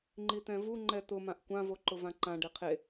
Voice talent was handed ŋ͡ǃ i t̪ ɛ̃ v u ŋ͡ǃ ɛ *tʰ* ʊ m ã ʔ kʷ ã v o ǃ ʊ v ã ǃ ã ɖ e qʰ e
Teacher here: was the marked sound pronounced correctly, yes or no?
no